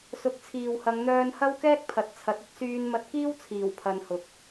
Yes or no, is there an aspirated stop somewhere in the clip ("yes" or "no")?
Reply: yes